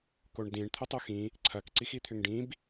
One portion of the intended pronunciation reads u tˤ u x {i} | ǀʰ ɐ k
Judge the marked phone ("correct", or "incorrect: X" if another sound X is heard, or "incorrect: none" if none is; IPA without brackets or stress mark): incorrect: ĩ